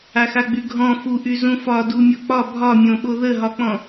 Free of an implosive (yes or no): no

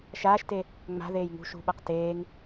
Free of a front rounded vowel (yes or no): yes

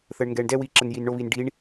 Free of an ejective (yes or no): yes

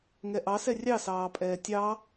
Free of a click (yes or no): yes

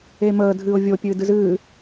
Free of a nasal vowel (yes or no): yes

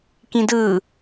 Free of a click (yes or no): yes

